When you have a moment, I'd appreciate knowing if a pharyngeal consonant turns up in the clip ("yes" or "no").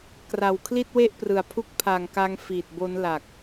no